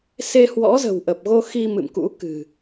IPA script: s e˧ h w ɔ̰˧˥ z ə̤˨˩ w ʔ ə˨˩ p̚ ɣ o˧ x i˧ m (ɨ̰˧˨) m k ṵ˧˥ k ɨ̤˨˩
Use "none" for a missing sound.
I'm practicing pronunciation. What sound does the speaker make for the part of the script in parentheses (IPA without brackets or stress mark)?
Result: ɨ̰˧˨